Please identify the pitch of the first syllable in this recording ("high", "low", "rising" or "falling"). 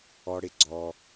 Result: high